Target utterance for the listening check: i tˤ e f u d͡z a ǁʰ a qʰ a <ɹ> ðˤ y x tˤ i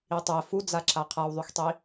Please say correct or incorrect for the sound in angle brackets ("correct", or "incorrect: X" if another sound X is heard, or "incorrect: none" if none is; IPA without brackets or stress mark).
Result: incorrect: w